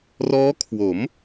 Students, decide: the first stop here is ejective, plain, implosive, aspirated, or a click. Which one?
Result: aspirated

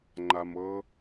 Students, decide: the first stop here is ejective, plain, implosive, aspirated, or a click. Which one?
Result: click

